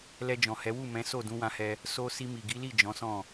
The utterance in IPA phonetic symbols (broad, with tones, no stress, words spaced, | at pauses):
lɛ˧d͡ʒɔ̃˨hɛ˨˦ wu˦˨mɛ̃˨˦so˦˨ dũ˨˦wã˧hɛ˧ | so˧ si˧ mi˨ɡi˨˦li˦˨ d͡ʒɔ̃˨˦sɔ̃˦˨